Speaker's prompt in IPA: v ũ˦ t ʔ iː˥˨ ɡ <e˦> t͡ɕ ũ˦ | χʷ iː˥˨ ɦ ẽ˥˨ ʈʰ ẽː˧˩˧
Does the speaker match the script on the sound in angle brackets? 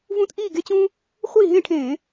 yes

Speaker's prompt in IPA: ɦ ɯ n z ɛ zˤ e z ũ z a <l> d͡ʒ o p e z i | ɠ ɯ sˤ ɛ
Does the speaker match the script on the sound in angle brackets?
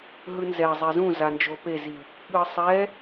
no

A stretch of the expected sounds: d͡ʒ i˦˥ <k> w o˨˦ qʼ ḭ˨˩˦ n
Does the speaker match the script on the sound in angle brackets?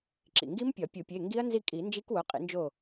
yes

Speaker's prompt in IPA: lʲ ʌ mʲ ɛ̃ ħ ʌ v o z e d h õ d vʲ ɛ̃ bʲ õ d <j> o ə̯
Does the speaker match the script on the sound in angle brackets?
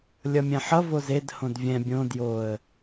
yes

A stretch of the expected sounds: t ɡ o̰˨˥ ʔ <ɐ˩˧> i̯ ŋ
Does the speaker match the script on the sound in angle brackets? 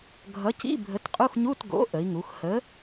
no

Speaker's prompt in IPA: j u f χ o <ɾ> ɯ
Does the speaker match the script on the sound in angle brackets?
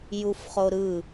yes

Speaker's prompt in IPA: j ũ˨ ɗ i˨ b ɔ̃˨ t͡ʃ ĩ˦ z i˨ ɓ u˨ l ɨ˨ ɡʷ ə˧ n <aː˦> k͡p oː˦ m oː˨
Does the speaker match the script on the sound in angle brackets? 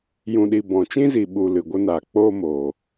no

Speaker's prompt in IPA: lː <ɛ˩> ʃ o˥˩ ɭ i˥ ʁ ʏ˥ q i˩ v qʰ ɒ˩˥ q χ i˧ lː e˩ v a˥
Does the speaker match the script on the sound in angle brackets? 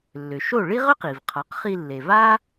no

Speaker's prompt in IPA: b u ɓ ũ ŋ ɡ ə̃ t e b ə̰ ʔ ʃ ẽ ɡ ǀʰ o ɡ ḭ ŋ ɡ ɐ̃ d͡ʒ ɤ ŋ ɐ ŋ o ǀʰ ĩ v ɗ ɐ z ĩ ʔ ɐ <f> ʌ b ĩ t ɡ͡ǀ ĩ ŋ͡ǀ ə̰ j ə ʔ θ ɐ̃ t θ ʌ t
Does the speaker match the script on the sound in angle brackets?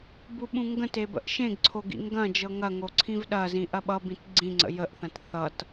no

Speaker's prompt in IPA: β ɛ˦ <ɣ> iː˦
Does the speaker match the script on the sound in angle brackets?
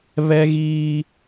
yes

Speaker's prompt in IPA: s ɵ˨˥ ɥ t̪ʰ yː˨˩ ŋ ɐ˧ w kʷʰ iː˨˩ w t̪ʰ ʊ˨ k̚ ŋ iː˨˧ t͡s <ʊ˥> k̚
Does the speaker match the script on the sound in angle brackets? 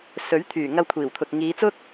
yes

